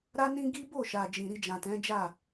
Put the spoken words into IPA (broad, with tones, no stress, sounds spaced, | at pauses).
ɾ a˦ n ĩ˦ ɡ i˦ b o˦˨ ʃ a˨ d͡ʒ ĩ˨ ɾ i˧ d͡ʒ ã˨ t ɛ̃˨˦ d͡ʒ a˦˨